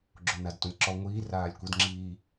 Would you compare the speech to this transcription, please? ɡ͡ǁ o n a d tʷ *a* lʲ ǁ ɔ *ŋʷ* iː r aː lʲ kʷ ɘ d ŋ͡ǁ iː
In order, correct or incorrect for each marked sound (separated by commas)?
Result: incorrect, correct